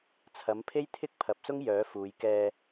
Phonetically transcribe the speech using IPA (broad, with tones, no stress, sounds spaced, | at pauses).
t͡sʰ ɐ˨˥ m pʰ e˥ j t̪ʰ ɪ˥ k̚ pʰ ɐ˨˥ p̚ s ʊ˥ ŋ j œː˨˥ f uː˨˧ j k ɛː˧